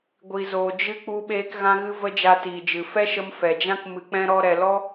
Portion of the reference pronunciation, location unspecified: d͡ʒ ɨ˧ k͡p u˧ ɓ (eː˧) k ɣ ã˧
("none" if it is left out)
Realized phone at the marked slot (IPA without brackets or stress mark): eː˧